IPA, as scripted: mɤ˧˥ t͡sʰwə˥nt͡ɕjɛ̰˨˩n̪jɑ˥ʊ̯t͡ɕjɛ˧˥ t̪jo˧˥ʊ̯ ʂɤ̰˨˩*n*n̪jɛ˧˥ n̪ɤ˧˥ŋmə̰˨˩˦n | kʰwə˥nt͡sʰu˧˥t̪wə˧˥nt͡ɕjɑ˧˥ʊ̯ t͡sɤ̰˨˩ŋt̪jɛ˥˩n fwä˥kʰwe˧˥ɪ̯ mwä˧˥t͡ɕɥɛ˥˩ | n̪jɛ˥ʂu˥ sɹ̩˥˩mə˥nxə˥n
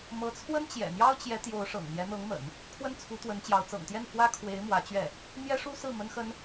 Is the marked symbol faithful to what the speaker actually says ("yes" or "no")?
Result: no